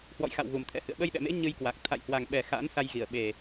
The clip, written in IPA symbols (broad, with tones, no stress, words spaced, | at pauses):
hwɔ̰˧˨jxa̰˧˨w ɣu˨˩mt̪ʰɛ̰˧˥hɨ̰˧˨ə̯ ɓə˧jɗɛ̰˧˨mḛ˧˥ ɲɨ˧jkwa˨˩k̚ t̪ʰa̰˧˨jhwa˨˩ŋ ɓɛ˨˩ xa̰˧˥n sa˧jɣi˧˩ə̯ɓe˨˩